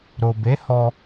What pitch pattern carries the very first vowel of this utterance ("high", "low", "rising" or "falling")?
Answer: low